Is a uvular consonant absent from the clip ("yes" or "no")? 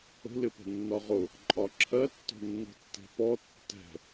no